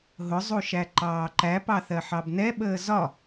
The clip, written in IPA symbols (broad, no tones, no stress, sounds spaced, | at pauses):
ɦ ʊ zˤ u ʃ æ ǃ ɑː ǃ æ p ɑ θ ɜ ħ ɑ b n ɛ ɓ əː z ɒ